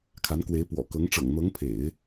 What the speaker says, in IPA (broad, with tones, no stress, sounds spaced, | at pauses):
kʰ a˧˥ n k w e˧˥ ɪ̯ p w ɔ̰˨˩ k ɤ˧˥ ŋ ʈ͡ʂ ɤ̰˨˩ ŋ n̪ ɤ˧˥ ŋ pʰ ḛ˨˩˦ ɪ̯